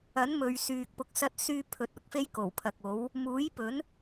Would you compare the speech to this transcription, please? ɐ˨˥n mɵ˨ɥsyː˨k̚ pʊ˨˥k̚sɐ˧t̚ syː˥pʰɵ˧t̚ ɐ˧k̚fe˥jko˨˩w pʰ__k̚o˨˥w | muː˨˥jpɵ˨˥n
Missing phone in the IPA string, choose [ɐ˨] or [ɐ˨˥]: ɐ˨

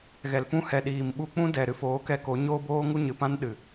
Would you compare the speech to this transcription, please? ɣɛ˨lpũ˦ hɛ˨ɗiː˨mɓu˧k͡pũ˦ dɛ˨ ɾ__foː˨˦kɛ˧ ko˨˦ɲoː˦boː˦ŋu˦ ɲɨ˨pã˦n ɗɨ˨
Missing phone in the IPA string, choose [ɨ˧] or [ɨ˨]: ɨ˧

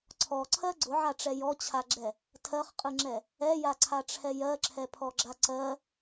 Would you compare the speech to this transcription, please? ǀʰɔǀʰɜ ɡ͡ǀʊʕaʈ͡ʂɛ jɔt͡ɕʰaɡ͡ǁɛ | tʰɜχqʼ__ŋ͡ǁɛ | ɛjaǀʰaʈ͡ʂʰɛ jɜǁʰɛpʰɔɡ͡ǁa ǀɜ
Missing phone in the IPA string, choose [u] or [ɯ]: ɯ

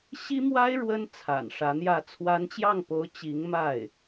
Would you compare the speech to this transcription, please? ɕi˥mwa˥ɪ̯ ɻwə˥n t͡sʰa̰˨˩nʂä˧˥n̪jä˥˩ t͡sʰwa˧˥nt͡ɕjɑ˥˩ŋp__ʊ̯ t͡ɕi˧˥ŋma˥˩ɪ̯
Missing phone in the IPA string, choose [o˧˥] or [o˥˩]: o˧˥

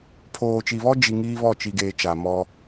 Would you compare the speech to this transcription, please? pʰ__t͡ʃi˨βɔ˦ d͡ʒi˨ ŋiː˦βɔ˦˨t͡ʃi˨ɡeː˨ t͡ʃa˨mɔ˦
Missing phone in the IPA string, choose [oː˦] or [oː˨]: oː˨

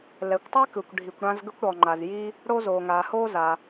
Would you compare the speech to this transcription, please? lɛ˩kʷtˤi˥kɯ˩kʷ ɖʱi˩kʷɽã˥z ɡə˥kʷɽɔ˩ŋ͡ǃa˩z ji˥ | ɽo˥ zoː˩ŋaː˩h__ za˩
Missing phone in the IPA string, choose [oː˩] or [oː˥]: oː˥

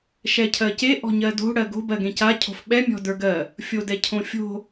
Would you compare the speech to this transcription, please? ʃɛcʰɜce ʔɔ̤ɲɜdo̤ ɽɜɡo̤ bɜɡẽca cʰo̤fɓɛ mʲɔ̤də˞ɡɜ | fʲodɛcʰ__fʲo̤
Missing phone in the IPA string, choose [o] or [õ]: õ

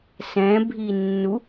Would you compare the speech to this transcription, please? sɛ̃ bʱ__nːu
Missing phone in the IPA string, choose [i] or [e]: i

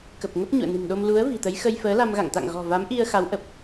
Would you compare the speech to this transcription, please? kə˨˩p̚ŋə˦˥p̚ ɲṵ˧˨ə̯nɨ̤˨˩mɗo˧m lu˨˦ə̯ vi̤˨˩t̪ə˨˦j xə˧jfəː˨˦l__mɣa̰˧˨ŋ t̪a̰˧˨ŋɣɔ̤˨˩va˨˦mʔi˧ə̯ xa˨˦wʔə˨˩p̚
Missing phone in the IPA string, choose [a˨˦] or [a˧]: a˧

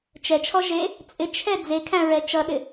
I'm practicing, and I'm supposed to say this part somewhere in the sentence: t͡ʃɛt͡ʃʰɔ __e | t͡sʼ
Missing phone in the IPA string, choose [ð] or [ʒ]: ʒ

